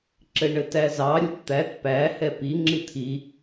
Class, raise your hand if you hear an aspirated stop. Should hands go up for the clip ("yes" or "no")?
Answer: yes